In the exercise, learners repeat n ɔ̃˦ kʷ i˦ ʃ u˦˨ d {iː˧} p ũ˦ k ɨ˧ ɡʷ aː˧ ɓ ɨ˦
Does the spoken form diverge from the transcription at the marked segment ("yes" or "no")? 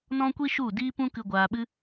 yes